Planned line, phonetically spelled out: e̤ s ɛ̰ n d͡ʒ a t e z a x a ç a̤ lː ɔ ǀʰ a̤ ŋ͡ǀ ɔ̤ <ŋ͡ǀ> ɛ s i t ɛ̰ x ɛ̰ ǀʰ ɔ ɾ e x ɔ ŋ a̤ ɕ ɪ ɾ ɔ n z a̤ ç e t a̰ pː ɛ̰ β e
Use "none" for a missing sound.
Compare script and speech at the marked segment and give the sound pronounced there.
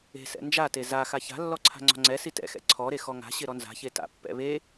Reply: ŋ͡ǀ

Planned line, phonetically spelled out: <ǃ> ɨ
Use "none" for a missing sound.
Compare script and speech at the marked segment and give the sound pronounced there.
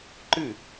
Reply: ǃ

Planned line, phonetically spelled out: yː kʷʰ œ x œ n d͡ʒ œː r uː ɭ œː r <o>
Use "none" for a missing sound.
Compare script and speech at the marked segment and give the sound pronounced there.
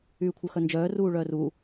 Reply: u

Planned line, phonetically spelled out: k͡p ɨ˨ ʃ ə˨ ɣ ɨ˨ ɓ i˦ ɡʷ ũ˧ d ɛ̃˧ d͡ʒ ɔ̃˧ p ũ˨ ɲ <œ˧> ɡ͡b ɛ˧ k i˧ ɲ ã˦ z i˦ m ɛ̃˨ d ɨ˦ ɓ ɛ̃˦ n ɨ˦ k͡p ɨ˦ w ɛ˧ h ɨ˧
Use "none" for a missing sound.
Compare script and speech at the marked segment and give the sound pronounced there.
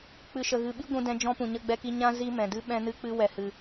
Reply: ə˧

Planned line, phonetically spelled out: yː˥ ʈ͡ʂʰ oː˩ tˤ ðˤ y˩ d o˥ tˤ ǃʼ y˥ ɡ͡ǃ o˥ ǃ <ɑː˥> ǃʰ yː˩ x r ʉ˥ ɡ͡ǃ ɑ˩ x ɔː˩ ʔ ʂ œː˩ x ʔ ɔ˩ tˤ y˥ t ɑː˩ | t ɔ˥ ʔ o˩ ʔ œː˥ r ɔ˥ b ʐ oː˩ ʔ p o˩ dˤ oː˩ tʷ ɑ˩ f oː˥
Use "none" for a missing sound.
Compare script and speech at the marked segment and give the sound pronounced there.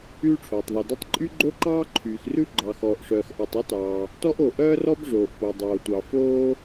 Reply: ɑː˥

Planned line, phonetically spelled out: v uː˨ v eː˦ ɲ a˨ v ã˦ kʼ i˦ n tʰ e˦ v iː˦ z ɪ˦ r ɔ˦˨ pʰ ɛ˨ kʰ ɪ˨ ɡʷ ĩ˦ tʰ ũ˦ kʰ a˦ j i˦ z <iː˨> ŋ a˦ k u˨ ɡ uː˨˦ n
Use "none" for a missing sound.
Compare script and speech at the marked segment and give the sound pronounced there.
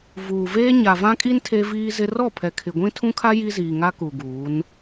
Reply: iː˨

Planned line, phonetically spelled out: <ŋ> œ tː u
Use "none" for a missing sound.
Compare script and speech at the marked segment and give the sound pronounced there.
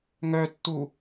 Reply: ŋ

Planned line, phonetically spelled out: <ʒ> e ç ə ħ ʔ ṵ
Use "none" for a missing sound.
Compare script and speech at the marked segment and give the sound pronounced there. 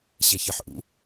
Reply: ɕ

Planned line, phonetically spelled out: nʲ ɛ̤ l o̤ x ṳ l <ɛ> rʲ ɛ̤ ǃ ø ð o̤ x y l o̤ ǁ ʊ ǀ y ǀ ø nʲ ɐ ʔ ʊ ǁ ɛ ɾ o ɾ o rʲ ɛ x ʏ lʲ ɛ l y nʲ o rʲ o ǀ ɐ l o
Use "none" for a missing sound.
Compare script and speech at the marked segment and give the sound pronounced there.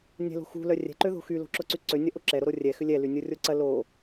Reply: œ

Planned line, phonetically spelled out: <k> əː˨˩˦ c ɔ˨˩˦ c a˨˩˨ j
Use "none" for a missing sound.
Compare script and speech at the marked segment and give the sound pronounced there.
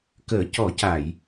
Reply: k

